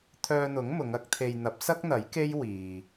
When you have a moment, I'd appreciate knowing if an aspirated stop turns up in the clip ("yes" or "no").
yes